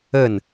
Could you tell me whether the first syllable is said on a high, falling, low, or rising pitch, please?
falling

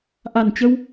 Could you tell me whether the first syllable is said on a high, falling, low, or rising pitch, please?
low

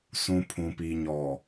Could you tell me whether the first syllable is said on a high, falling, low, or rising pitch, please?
low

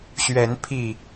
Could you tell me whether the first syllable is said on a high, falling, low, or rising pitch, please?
rising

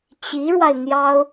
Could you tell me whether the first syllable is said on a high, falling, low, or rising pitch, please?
rising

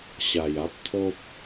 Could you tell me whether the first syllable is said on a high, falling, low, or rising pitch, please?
low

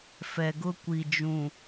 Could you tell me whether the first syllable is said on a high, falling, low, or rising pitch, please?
low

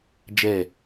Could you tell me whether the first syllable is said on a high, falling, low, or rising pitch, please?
falling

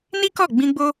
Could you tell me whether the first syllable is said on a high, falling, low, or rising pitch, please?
high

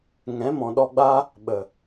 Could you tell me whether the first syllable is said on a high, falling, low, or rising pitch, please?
rising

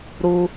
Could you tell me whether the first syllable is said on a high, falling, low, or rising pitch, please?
high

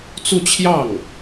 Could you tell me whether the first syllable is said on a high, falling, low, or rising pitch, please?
falling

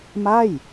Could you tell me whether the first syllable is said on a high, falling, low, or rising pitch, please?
falling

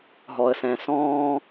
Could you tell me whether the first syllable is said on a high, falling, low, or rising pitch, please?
low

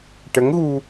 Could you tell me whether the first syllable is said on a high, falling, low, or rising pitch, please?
rising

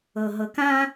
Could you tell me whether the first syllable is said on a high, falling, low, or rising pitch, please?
low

